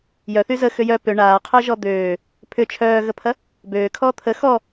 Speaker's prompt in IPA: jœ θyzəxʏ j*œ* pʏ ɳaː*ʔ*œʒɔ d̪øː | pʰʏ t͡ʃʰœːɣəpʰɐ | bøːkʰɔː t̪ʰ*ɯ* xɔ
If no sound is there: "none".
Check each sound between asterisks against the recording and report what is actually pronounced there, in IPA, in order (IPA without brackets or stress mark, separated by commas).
œ, qʰ, ə